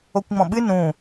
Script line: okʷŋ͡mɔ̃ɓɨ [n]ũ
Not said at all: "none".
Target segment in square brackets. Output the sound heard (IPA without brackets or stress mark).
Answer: n